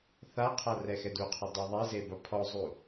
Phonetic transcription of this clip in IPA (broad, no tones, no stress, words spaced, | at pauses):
θaqʰa rɛxɛduqʰɔ dˤɛðˤeze bɐpʰɔzˤu